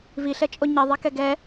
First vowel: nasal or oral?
oral